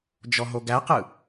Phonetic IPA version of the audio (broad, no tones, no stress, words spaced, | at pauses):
d͡ʒɔɦoɡæqɯ